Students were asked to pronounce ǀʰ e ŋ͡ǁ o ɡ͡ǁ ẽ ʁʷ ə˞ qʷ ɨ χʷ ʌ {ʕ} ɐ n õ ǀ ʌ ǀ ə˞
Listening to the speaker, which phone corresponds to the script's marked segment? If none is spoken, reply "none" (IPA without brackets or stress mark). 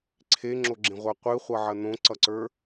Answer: ʕ